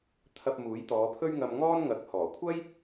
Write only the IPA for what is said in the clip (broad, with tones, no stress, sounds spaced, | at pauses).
t̪ʰ ɐ˧ p̚ m uː˨˥ j t̪ ɔː˨˧ pʰ ɵ˥ ɥ ŋ ɐ˧ m ŋ ɔː˥ n ŋ ɐ˨˥ k̚ h ɔː˨˩ kʷʰ ɐ˥ j